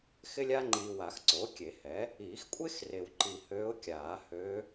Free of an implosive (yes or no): yes